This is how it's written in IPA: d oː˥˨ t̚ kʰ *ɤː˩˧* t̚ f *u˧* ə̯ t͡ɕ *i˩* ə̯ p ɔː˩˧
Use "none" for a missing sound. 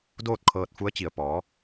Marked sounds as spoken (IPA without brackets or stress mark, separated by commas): ɤː˧, u˧˥, i˩